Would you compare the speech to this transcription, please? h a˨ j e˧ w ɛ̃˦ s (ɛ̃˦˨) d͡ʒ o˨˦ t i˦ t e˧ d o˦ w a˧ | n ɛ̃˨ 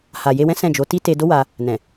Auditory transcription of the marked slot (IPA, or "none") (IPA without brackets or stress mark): ɛ̃˦˨